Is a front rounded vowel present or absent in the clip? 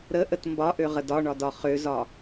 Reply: present